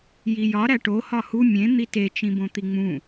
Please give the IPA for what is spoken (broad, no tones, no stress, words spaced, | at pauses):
jijɒ ɾæʈo hɒhu mʲẽ n̪ite t͡ʃĩbõt̪iŋ͡mũ